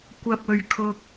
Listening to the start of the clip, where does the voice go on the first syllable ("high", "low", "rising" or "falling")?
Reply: low